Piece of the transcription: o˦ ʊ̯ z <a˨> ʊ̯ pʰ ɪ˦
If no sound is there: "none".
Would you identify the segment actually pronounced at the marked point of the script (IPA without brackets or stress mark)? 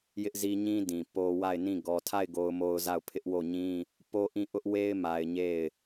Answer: a˦˨